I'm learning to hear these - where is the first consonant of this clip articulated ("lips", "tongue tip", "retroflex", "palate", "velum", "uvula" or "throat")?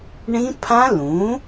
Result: retroflex